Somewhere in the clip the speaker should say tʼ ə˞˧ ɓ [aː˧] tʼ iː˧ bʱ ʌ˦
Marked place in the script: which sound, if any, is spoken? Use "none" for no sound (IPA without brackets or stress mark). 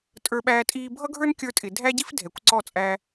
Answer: æː˧